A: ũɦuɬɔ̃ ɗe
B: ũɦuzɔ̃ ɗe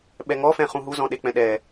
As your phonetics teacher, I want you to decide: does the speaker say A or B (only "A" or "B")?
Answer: B